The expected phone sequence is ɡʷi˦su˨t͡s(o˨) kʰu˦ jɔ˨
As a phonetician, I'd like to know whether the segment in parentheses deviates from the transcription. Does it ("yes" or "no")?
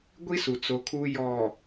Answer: no